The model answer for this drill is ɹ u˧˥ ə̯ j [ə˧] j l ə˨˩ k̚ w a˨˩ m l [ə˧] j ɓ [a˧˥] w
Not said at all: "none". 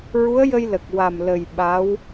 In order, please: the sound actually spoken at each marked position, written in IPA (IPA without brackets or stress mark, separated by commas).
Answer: ə˧, ə˨˩, a˧˥